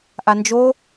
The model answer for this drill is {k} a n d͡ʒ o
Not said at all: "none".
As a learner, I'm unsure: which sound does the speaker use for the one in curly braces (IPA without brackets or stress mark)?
ʔ